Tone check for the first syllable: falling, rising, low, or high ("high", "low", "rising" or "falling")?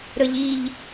high